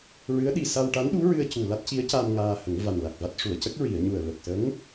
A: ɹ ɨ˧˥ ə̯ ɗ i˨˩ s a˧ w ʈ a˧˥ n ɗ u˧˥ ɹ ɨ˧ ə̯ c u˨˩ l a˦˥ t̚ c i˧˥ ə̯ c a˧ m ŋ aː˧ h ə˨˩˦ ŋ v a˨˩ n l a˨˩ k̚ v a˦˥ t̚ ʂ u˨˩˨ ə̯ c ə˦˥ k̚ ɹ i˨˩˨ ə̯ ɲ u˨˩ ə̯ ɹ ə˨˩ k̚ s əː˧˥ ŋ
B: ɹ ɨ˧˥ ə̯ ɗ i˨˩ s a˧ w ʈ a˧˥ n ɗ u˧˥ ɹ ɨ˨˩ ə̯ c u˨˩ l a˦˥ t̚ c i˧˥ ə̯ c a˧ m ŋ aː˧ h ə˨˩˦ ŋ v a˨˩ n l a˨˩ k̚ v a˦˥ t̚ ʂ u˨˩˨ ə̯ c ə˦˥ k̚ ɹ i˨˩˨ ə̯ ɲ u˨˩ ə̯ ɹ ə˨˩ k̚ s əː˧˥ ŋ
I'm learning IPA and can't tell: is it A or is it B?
A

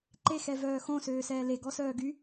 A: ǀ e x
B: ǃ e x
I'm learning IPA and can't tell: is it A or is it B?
B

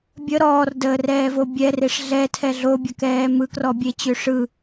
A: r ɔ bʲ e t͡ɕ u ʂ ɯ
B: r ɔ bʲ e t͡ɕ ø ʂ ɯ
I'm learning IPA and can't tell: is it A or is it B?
B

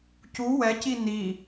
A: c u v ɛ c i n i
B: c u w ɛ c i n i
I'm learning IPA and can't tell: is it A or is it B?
B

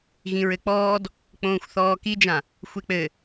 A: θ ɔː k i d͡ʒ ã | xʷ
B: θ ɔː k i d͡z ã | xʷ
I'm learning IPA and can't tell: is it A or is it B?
A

